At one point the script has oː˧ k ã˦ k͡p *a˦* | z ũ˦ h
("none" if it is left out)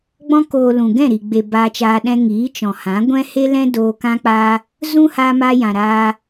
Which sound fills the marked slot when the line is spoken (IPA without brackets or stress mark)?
a˦